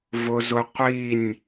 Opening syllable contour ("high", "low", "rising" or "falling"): high